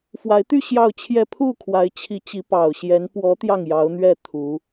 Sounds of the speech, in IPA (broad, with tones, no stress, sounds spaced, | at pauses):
f w a˧˥ ɪ̯ t̪ y˥˧ ɕ j ɑ˥˧ ʊ̯ t͡ɕʰ j ɛ˥˧ pʰ u˥˩ kʰ w a˧˥ ɪ̯ t͡ɕʰ i˧˥ t͡ɕ i˧˥ p ɑ˨˩ ʊ̯ ɕ j ɛ˧˥ n p w ɔ˧˥ t̪ j ɑ˥˩ ŋ j ɑ˧˥ ʊ̯ n̪ ɥ ɛ˥˩ t̪ʰ u˧˥